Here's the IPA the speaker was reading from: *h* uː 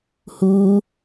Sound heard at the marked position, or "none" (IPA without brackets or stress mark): h